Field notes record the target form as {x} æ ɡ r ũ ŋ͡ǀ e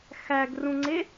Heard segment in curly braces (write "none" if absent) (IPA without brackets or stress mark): x